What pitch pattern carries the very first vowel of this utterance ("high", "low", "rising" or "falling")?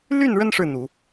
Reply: falling